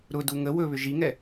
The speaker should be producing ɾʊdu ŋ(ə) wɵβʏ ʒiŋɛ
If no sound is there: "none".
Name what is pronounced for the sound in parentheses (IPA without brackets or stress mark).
ə